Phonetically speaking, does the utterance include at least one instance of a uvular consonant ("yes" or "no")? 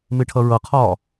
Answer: yes